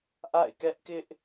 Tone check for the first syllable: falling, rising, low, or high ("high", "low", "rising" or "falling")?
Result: falling